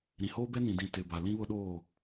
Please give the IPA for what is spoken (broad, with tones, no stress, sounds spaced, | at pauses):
ɾ ĩ˨ h oː˦ b ɛ˦ n ĩ˨ d ĩ˨ t ɪ˨ b a˨ l ĩ˦ β ʊ˦ ɗ oː˦˨